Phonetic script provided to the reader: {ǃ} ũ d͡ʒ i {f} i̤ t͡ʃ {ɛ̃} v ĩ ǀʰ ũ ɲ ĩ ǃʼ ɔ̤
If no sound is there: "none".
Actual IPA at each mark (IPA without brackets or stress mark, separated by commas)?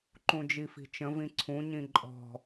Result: ǃ, f, ə̃